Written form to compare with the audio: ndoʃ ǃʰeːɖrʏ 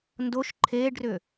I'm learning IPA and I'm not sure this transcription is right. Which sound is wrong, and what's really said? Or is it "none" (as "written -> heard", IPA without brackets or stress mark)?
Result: none